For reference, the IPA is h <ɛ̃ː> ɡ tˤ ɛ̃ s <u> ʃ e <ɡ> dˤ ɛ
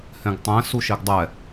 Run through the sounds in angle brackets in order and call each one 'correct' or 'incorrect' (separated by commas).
incorrect, correct, correct